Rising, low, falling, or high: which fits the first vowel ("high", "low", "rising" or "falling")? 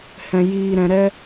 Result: low